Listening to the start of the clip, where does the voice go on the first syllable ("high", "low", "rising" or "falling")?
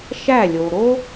falling